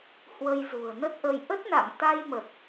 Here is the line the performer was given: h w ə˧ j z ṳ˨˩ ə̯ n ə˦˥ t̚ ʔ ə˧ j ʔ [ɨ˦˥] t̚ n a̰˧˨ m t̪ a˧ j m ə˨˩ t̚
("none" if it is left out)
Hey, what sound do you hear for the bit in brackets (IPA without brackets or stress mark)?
ə˦˥